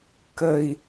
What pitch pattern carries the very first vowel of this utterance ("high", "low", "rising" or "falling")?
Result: low